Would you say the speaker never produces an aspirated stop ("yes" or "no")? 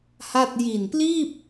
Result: yes